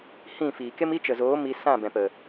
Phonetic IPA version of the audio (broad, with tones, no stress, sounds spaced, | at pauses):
h ĩ˦˨ f iː˨ k e˦ m i˦ t͡ʃ ə˨ z oː˨˦ m i˧ s ã˦˨ b ɛ̃˨ p ə˨